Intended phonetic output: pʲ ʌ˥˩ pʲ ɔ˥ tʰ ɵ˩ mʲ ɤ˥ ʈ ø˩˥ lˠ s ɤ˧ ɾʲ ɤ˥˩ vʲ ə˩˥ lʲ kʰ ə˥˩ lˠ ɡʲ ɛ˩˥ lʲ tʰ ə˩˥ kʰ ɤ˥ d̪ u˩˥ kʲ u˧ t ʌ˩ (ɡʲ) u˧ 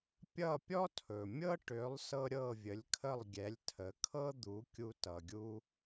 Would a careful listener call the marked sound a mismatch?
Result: no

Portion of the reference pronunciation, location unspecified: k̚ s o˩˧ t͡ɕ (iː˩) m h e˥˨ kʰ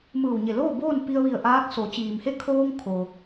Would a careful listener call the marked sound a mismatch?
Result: no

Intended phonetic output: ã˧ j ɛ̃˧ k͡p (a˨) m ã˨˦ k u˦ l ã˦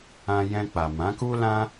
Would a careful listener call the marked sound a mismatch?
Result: no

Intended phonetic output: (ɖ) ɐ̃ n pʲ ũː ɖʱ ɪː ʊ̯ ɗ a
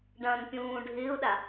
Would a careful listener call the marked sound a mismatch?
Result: no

